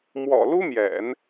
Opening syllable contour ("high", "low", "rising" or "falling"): low